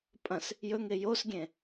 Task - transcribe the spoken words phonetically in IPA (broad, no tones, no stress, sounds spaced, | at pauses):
pʼ ɐ̃ s | j ɵ ŋ e j o s ɡʲ ẽ